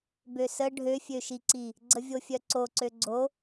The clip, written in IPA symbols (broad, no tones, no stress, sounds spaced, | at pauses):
b ø s ə ɖʱ ø fʲ ø ʃ i ǀ i | ɡ͡ǀ ə vʲ o fʲ œ ǀ o ǀ ø ɡ͡ǀ o